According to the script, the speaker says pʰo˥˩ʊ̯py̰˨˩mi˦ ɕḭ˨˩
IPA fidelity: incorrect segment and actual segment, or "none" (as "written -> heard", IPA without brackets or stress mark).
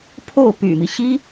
ḭ˨˩ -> i˥